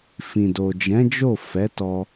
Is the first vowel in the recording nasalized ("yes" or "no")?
yes